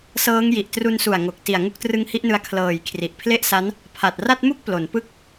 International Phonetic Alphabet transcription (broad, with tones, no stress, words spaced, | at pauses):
sɤː˦˥ŋ ji˨˩ʔtru˧nsu˨˩a̯ ŋo˨˩k̚ ti˨˩a̯ ŋu˦˥k̚trɯ˦˥ŋhi˦˥ʔnɯ˧a̯ kʰlɤː˨˩j kʰri˨˩ʔpʰle˥˩ʔsa˦˥n | pʰa˨˩t̚ ra˥˩t̚mu˥˩k̚ plo˩˦npɯ˥˩k̚